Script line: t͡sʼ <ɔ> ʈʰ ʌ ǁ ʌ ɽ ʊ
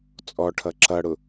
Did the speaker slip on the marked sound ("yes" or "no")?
no